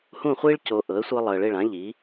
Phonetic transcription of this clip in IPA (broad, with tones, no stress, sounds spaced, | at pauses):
h ũ˦˨ χʷ i˦ ɭ c o˨ ʔ ɤ˩˥ ə̯ sʷ ɤ˦ lˠ ɤ˨ ə̯ ɭ e˦˨ ɭ ã˩˥ ʎ i˩˥